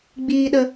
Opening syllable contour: low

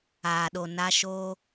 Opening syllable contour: low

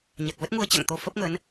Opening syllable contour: low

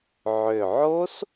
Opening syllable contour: low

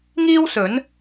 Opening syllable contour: high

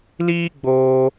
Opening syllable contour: high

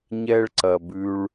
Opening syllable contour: high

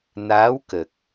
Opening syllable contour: rising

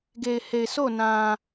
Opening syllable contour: low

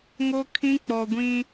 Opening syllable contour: high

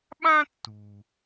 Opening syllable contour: high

